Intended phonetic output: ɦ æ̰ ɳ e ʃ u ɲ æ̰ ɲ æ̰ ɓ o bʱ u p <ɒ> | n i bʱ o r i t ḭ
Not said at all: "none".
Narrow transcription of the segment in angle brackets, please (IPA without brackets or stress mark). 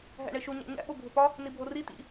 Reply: ɒ